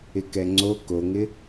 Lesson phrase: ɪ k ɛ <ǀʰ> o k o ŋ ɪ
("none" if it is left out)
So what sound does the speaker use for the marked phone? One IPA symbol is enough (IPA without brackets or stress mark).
ŋ͡ǀ